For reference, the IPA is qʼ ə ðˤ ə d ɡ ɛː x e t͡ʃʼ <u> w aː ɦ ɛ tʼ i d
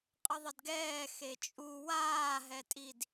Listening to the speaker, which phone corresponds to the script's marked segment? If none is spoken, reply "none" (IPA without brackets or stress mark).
u